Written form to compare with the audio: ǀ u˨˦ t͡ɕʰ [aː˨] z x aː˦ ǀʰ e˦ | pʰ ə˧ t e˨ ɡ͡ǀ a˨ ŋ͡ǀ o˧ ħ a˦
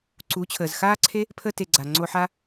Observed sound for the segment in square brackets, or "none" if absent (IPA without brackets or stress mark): əː˨